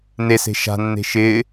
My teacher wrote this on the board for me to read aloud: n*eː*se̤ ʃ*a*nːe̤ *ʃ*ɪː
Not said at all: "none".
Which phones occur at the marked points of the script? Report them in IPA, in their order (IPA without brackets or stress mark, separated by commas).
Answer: e, a̤, ʃ